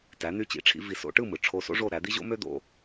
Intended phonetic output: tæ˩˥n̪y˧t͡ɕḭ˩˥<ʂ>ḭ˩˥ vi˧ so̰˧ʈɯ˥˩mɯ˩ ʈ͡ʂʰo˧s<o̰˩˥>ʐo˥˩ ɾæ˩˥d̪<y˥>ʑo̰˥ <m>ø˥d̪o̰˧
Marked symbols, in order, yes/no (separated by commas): no, no, no, yes